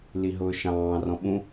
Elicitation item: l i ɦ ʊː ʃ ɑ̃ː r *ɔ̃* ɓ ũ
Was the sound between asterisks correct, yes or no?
yes